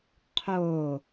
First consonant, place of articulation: uvular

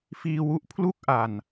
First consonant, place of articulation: labial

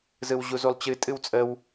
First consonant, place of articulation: alveolar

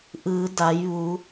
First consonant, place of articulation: glottal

